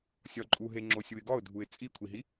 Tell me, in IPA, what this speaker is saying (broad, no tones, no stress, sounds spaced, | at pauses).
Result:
sʲ ɒ ǃʼ u ɦ e ŋ͡ǁ o sʲ u ɪ̯ ɡ ɒ ʊ̯ dʱ u ɪ̯ t͡sʼ i kʷʰ i ɦ i